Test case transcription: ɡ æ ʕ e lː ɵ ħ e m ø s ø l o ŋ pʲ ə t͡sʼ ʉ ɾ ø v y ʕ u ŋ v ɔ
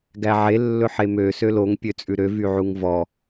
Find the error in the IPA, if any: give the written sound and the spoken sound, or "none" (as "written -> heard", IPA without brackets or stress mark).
ə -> ø